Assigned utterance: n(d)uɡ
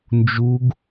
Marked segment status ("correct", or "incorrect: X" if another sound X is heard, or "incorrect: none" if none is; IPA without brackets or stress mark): incorrect: d͡ʒ